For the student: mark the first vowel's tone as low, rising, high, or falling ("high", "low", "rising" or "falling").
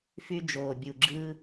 high